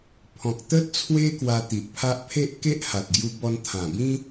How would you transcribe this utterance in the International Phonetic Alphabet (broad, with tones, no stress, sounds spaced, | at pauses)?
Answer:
pʰ ɔ̃˨ k̚ t̪ ə˦ t̚ t͡sʰ w e˦ k w a˧ t̪ i˨ ʔ pʰ a˦ ʔ pʰ e˦ ʔ k e˦ ʔ h a˨ t̚ ɡ j u˧ b ɔ˧ n t̪ʰ ã˨˩ b ĩ˦